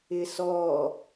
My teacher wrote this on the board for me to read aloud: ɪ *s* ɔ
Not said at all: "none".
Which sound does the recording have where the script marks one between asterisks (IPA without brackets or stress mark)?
s